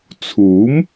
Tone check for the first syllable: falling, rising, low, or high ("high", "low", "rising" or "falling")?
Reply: rising